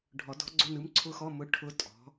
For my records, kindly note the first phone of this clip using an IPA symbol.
ɖʱ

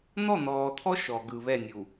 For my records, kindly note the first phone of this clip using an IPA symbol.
n̪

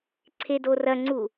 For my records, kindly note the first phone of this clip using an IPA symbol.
ǀʰ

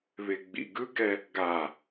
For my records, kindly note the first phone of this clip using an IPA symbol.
β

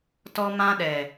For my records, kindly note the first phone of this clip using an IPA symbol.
t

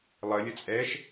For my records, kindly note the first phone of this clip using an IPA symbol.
lˠ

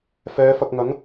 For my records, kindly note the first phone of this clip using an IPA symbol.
f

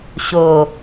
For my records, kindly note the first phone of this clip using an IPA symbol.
ɕ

